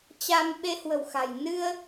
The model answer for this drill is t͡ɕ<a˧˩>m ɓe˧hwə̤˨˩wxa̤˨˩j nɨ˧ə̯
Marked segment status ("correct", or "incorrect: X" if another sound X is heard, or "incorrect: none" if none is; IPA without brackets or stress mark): incorrect: a˧